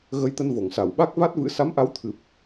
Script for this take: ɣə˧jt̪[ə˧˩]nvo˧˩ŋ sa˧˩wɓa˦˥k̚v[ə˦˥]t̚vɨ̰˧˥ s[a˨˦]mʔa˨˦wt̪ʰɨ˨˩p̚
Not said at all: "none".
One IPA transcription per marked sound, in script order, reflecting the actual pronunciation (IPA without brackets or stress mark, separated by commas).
ə˧, a˦˥, a˨˦